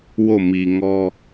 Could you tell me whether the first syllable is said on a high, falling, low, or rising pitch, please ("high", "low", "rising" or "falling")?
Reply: falling